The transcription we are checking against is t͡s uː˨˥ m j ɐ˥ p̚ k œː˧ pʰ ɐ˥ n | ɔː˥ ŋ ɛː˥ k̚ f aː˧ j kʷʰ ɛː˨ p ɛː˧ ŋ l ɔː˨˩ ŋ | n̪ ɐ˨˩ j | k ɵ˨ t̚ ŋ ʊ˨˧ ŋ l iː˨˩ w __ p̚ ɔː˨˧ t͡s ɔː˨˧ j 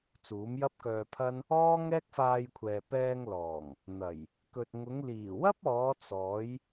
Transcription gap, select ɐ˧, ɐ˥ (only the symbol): ɐ˥